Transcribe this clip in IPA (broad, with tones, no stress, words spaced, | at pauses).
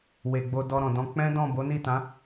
we˨ ɡ͡bo˧dɔ˧ɾɔ̃˨dɔ̃˧ k͡pɛ̃˦dɔ̃˦˨bo˨˦ ni˦˨tã˨˦